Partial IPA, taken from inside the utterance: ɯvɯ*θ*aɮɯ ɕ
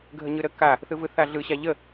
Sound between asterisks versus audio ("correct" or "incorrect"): correct